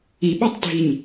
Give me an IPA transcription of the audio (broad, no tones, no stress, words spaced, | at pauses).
iɓɔtˤdʱiɲ